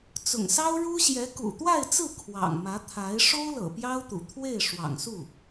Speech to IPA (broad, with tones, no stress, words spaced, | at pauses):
t͡sʊ̰˨˩ŋsɑ˥ʊ̯ɻu˥ɕjɛ˧˥ kṵ˨˩t̪wa˥˧ɪ̯t͡sɹ̩˥˩ kʰwɑ̰˨˩ŋ mä˧˥t̪ʰa˧˥ɪ̯ ʂo˥ʊ̯lɤ̰˨˩ pjɑ˥ʊ̯t̪ṵ˨˩ t̪ʰwe˥˩ɪ̯ ʂwɑ̰˨˩ŋsu˥˩